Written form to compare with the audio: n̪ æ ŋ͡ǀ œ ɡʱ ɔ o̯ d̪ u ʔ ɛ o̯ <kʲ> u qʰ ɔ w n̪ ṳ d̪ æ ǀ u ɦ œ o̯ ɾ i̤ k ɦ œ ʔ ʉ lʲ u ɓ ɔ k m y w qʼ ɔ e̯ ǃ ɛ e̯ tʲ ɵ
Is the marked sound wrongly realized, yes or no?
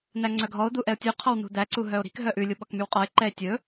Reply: yes